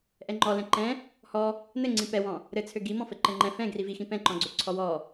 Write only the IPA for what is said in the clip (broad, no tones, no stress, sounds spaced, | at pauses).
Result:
ʔ ɛ ŋ͡ǃ ɔ l ɛ̃ ǃ ɛ̃ | h ɔ | n ɘ ŋ͡ǀ ĩ p ɛ w ɔ̃ | ɾ ɘ t͡sʰ ø ɡ i m ɔ̃ f ɘ ǃ ɘ ŋ͡ǃ ɛ̃ f ɛ̃ ɡ r i v i x ĩ p ɛ̃ ǃ ɔ̃ ɡ͡ǀ ø ǀʰ ɔ w ɔ